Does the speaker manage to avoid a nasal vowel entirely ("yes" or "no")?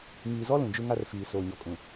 no